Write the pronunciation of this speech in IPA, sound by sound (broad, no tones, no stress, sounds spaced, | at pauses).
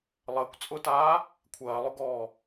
lˠ əː kʷ t͡sʼ ʊ t aː | kʷʰ ɐː lˠ ʊ ɡ ɔː